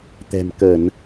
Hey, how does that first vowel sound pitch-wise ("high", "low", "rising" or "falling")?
low